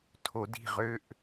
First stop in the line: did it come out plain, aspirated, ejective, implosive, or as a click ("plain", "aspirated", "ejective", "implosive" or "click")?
aspirated